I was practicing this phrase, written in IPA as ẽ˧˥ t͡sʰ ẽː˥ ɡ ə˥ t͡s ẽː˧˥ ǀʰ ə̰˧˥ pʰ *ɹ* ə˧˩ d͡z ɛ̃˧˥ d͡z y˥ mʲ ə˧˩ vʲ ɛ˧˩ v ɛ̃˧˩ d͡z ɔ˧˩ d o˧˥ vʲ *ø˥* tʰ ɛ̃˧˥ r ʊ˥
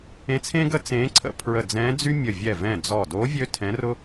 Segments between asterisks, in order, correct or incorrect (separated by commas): correct, correct